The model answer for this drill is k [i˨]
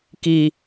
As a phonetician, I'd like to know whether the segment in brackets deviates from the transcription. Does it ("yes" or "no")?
no